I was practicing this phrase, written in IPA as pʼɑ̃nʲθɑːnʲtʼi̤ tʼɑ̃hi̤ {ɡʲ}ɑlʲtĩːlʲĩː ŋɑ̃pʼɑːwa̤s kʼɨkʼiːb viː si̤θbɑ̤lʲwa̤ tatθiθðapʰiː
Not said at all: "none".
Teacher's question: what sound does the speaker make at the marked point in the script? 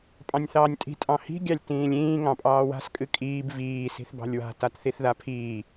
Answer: ɡʲ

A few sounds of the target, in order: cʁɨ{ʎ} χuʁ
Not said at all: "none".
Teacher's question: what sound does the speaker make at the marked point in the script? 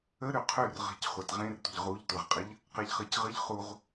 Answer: ʎ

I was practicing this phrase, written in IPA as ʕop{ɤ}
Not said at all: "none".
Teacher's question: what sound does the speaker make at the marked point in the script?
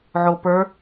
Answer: ə˞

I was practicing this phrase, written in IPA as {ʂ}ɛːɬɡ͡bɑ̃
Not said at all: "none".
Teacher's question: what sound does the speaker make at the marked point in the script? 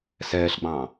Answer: s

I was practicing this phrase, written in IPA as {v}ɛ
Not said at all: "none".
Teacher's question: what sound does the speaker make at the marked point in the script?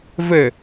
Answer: v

